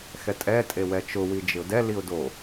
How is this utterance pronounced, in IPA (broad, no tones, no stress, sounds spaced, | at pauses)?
x ɛ tʼ ɛ tʼ e w ɛ t͡ʃ ʊ w i d͡ʒ ɪ ʊ̯ d ɛ l i ʊ̯ d o